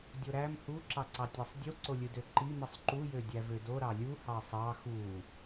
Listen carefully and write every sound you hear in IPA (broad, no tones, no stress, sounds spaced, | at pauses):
dʲ o ɾ æ m h u ǁ ɑ ǀ ɑ tʲ ɑ sˤ dʲ u ǀ o lʲ ɯ d ø ǃ i m ɯ sˤ ǃ u j ø dʲ æ v ø d o ɾ ɑ lʲ u h ɑ sˤ ɑ x u